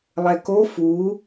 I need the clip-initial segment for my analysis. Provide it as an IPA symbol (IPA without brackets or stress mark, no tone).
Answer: lˠ